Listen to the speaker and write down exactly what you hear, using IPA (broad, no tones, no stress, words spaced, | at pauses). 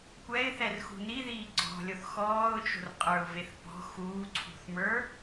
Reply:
kʷɛɪ̯θɛrxṳ niðiː ɡ͡ǀɔ̤lʲoθ xɔːʊ̯t͡ʃo̤r qʼə˞ʊ̯veθpɔ̤ xuːǀʰṳθmə˞